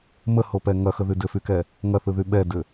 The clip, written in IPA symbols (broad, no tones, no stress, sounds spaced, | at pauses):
m ə h o p ɛ ŋ ɐ x ə ð y d ʏ f y k ɛ | ŋ ɐ θ ɯ ð y ɓ ɛ d ʏ